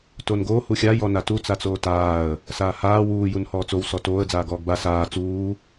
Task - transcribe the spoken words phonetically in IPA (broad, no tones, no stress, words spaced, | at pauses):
tonɡoː huxʲa jɔnatu t͡sat͡soːtaːə̯ | saːhaː wuː junhɔːt͡sow sɔtoːə̯ d͡zaːɡɔːɡba saː t͡suː